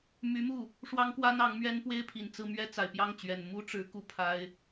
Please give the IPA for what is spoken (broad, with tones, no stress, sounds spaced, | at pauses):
m y˧˥ m u˥˩ | ʂ w ɑ˥ ŋ k w a˥ n ɑ˧˥ ŋ m ɥ ɛ˥ n p w e˥ ɪ̯ pʰ i˨˩ n t͡s ɹ̩˥˩ m ɥ ɛ˥ t͡s a˨˩ ɪ̯ p j ɑ˥˩ ŋ t͡ɕ ɥ ɛ˨˩ n m u˥ ʈ͡ʂ ɻ̩˧˥ k u˥˩ pʰ a˥ ɪ̯